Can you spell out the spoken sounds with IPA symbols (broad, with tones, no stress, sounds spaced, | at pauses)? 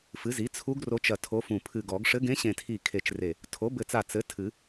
f ɨ˩˥ z i˩˥ t͡sʰ u˧˥ ɡ r o˧˥ t͡ʃ ɐ˧˩ tʰ o˧˥ f ũ˧˩ pʰ ɨ˧˩ ɡ ɔ˨˩˦ ɡ ʂ ɘ˧˥ ɡ ẽ˧˥ ɕ ẽ˧˩ tʰ i˧˩ kʰ e˧˩ t͡ʃ r e˧˩ | tʰ o˩˥ b ɘ˧˩ t͡s a˧˩ t͡s ɘ˩˥ tʰ ɨ˨˩˦